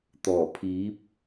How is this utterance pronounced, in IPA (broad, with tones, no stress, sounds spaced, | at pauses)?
t̪ ɔː˨˩ pʰ iː˨˥ p̚